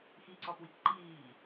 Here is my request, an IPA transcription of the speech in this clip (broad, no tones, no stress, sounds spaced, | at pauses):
x i ǀ ɔ p w i k ǃ iː